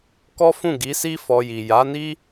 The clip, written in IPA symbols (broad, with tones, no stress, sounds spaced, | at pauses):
k ɔ˦ f ũ˦˨ ɡ i˨˦ s i˦ f ɔ˧ j i˨ j a˨˦ n i˦